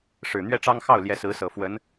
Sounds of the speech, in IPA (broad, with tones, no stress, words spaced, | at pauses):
ʂɻ̩˨˩n̪ɥɛ˥ʈ͡ʂɑ˥ŋ xɑ˥˩ʊ̯ ljɛ˧˥sɹ̩˧˥sɤ˨˩fwə˧˥n